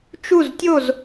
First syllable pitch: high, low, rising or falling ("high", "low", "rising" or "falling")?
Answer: falling